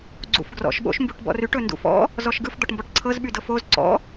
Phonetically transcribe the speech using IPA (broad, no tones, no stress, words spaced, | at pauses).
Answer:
ɡ͡ǀṵfɡrɔ̰ʃ ɓo̰ʃmbuʈbɔ̰ryʈ ɵndṵfɔ̰ | zɔʃɡɯf d̪ɔʈmbɔʈǀʰɤz ɓydɤfoz ǀɔ̰